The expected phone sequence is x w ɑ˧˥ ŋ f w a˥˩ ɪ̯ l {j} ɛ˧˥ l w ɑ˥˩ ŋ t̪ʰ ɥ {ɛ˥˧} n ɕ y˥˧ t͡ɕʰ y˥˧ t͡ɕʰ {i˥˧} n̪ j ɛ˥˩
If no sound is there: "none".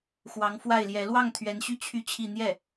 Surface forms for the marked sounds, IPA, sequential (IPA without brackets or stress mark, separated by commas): j, ɛ˧˥, i˥˧